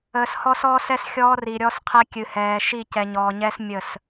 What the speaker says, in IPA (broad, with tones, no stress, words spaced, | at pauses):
əː˨shɔ˦sɔː˦sɛ˦s xʲɔː˦ri˨ɾʲɔ˦s qʰɛ˦ kʲɨ˨hɛː˨ ʃi˦˨cɛ˨ɲɔː˨ɲɛː˦s mʲə˦˨s